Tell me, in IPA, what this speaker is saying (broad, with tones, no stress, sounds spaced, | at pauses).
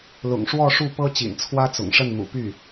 l ʊ̰˨˩ ŋ ʂ w ɔ˥˧ ʂ u˥˩ p ɤ˥ t͡ɕ ḭ˨˩ n t͡sʰ w ä˥ t͡s ʊ̰˨˩ ŋ ʂ ə˥˩ n n̪ ṵ˨˩ p y˥˩